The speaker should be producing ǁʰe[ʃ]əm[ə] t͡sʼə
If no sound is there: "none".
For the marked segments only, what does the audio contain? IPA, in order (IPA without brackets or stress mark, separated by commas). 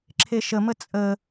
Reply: ʃ, ə